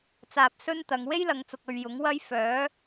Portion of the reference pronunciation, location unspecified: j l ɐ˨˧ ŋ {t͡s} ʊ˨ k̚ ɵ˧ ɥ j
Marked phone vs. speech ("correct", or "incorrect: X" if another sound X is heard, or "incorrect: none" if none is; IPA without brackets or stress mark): correct